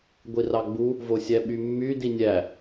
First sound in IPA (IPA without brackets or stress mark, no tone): ɡʷ